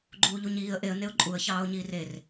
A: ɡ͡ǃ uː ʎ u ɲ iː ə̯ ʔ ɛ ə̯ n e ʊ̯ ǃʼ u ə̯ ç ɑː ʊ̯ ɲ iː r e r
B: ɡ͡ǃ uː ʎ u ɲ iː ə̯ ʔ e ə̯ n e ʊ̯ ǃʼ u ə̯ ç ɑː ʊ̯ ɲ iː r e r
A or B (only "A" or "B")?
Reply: B